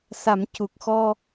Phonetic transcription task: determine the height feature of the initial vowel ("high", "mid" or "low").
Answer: low